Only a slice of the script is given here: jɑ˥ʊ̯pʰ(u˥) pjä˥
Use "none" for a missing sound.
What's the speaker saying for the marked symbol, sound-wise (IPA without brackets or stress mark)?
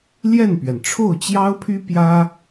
y˥